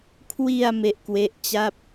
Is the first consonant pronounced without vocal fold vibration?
yes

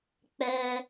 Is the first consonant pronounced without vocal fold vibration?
yes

